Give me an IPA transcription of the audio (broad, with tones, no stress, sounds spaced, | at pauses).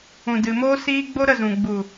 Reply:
ũ˨ d ɨ˨ m oː˦ s iː˦ ɡ͡b o˦ ɾ ə˦˨ z ũ˨ ɡ͡b u˨